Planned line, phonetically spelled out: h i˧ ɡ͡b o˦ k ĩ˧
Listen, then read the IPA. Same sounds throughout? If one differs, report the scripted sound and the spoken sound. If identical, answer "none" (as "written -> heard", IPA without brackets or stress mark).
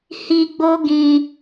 k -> ɡ